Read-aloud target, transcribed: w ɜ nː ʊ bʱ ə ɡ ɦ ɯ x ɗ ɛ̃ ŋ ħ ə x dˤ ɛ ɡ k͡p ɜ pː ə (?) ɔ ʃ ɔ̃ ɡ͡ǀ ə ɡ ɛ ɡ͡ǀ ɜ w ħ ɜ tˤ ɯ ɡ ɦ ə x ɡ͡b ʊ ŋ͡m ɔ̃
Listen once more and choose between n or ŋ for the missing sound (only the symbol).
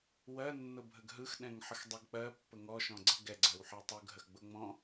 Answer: ŋ